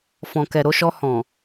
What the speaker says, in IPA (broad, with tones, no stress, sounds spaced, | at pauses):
f ɔ̃˨ k ɛ˨ ɾ o˧ ʃ ɔ˧ h ɔ̃˨